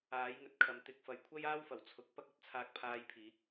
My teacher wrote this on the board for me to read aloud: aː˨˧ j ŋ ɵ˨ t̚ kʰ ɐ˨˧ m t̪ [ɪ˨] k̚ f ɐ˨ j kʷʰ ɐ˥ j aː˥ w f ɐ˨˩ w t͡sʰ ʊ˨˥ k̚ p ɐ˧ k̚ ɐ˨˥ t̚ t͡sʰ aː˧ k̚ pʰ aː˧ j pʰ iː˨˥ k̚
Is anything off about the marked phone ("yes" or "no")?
no